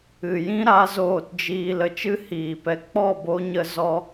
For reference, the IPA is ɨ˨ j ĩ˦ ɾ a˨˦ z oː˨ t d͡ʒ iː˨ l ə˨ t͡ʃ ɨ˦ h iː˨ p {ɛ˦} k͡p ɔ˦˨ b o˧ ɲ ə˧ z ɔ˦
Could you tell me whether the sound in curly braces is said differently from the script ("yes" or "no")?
yes